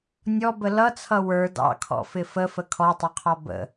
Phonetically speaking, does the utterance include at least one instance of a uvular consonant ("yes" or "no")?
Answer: yes